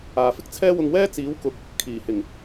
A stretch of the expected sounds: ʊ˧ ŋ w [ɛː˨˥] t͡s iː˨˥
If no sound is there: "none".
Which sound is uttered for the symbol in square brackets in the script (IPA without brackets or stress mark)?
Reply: ɛː˥